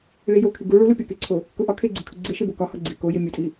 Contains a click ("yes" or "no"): yes